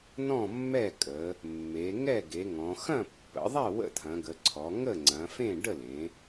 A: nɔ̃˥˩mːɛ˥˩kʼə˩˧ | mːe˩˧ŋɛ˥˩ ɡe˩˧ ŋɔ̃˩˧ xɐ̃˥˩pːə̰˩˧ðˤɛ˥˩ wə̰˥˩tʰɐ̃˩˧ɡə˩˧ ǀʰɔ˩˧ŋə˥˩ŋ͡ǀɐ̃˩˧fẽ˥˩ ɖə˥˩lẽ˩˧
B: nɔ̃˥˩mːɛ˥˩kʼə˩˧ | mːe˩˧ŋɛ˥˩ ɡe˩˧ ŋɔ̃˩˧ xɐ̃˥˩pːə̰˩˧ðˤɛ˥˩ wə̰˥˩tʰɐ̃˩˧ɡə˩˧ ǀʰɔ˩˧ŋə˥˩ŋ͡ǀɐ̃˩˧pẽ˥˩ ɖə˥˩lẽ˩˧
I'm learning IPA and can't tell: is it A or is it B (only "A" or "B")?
A